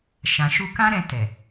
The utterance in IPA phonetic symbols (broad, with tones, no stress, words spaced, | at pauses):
ʃã˨ʃu˧ kã˦ɾɛ̃˧ tɛ˨